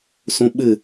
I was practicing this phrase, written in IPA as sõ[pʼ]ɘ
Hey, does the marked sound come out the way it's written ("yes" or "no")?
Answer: no